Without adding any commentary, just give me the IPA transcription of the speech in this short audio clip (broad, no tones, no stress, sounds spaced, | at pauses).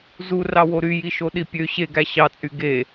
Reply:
z u r ɑ w o ɾ y j i ʃ o ɗ i pʲ ø ɕ e ɡ æ ɕ ɑ t͡sʼ y ɡ e